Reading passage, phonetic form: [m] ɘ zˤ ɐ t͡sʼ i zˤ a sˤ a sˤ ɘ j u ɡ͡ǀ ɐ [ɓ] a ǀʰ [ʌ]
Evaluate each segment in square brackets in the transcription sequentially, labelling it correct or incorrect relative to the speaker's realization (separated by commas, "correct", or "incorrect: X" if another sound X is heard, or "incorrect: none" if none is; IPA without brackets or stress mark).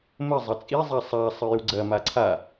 correct, incorrect: m, incorrect: a